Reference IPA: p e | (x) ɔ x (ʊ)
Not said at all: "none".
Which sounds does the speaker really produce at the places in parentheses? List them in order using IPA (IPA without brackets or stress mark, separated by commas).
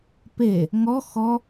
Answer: ŋ, ɔ